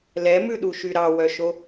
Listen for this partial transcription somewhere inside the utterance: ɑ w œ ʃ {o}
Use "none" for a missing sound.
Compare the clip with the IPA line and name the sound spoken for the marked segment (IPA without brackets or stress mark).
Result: o